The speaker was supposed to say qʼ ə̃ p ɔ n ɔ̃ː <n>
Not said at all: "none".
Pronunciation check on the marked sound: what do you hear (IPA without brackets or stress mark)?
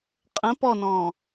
none